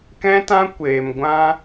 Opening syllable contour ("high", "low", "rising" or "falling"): high